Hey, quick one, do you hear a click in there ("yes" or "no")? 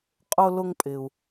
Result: no